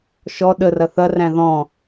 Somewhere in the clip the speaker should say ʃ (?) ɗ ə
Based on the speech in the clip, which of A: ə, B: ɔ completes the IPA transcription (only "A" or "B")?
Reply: B